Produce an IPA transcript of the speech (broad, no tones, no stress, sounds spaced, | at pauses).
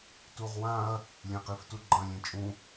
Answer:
t u ʁ w ã ɐ̯ | lʲ ẽ q i f t u ɡ͡ǃ ɐ̃ lʲ ẽ t͡ʃʼ ũ